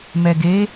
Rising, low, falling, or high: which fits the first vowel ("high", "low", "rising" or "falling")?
low